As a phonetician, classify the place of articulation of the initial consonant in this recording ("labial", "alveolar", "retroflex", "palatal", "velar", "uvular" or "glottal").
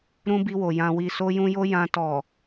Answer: alveolar